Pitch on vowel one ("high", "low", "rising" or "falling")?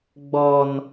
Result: high